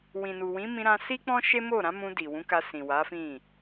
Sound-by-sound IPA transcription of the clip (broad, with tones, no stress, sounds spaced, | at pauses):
w ĩ˨ n u˨ w ĩ˨˦ m ĩ˧ ɾ ã˧ s i˦ k͡p ɔ̃˦ ʃ e˦ m o˦˨ ɾ ã˨˦ m ũ˧ d i˨ w ũ˨˦ k a˧ s ĩ˨ w a˨˦ f ĩ˦˨